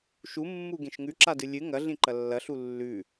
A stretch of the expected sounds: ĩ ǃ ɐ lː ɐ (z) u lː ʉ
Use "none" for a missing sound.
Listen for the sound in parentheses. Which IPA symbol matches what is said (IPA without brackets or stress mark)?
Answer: ɬ